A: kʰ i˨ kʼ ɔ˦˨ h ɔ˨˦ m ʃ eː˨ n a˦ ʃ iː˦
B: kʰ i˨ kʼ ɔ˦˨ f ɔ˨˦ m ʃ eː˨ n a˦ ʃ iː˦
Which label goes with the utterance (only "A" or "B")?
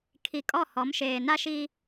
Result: A